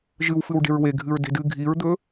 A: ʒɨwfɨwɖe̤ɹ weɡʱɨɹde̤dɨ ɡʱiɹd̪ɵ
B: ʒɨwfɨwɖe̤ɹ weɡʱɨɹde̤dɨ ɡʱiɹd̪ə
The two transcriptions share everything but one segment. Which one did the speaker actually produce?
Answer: A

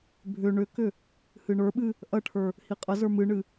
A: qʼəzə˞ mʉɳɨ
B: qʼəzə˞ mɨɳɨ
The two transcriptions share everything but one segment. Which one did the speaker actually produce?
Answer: B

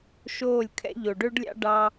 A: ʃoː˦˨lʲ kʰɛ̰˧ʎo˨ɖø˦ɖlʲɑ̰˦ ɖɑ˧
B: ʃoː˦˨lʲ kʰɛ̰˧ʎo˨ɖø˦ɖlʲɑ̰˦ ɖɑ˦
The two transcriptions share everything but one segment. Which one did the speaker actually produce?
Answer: B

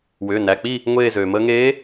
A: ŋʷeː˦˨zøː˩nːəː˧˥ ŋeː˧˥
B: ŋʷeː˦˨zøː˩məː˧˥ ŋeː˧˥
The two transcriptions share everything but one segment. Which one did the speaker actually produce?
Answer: B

